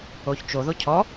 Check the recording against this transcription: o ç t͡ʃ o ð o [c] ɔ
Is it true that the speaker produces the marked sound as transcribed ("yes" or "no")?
no